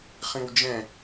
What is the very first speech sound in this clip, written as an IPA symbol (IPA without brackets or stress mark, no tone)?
χ